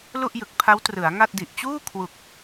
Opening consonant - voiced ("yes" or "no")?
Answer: yes